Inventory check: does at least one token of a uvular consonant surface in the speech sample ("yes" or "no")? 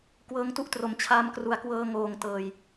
no